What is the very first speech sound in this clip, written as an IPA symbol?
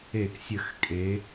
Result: e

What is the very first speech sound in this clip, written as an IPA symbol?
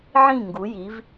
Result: ʕ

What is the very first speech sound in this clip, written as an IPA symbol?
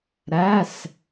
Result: ɾ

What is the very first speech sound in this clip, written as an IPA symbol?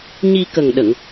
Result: ɲ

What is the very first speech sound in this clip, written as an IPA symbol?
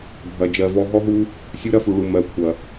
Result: bʱ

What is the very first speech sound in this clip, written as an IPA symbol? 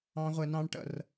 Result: ɑ̃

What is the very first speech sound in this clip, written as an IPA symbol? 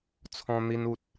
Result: t͡sʰ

